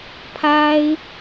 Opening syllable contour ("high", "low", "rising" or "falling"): high